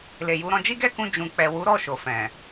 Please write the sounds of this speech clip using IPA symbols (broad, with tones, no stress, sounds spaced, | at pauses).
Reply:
l e˨ j u˨˦ ɾ ɔ̃˧ d͡ʒ i˦ ɡ ɛ˦ k ũ˧ d͡ʒ ũ˨ k͡p ɛ˨ w u˨˦ ɾ ɔ˦˨ ʃ o˨ f ɛ̃˨